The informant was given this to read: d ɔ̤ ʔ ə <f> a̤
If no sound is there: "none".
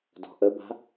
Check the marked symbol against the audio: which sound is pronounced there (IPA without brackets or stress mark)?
b